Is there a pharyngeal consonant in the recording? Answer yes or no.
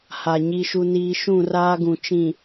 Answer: no